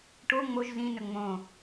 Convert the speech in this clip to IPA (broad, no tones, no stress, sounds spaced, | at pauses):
ʈ o ŋ͡m o ʒ z ĩ n ɵ ŋ͡m õ